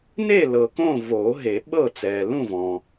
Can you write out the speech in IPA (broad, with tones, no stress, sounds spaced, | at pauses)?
n e˥˨ l ɤ˨ k õ˥˨ v oː˨˩˦ ɦ e˨˩˦ ɓ ɤ˥˨ t͡s ɛː˨ l ũ˥˨ v ɔ̃ː˨